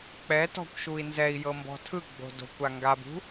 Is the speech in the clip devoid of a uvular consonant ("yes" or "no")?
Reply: yes